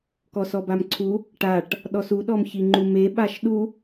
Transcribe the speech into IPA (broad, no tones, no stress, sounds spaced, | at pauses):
k ɔ s ɔ b a m ǀʰ u | ʈ a ʈ | ɗ ɔ s u ɗ ɔ m ç i ŋ͡ǃ u m e ɓ a ʃ ɗ u